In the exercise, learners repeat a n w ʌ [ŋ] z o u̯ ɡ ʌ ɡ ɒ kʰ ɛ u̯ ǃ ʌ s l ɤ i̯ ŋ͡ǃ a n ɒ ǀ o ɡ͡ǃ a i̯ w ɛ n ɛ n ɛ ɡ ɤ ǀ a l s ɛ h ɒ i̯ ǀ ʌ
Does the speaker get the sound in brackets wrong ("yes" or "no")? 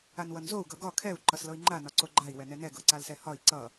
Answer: yes